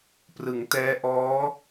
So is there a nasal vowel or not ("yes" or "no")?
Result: no